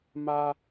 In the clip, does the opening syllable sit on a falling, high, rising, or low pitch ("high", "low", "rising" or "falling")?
high